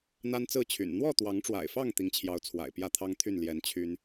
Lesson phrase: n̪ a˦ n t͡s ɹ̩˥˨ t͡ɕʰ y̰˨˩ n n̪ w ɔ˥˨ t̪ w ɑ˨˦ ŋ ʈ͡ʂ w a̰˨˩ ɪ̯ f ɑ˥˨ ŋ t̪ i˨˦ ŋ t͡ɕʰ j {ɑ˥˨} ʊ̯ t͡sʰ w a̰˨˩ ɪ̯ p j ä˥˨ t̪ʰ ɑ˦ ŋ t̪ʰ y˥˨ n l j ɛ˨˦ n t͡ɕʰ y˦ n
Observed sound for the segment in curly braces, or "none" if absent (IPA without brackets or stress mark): ɑ˨˦